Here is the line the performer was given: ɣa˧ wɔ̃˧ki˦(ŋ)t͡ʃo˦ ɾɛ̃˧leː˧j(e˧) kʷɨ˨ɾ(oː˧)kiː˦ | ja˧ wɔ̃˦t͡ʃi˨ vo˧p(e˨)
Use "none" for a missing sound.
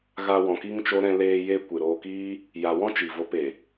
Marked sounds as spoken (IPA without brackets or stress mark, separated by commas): ŋ, e˧, oː˧, e˨